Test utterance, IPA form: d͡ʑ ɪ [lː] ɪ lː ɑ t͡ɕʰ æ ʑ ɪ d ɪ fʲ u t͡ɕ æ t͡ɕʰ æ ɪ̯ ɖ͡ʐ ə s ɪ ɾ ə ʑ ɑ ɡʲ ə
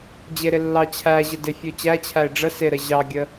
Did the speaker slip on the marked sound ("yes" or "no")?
yes